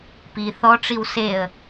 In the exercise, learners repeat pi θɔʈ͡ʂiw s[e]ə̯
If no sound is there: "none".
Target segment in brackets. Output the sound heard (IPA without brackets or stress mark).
e